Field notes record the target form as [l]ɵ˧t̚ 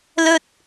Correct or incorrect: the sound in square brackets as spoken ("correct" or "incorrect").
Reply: correct